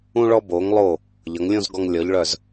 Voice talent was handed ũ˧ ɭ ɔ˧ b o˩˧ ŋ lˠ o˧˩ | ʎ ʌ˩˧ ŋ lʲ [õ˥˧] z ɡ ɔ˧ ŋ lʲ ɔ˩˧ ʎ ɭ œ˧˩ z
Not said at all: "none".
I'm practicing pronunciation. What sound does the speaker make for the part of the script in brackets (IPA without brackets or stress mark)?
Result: õ˥˧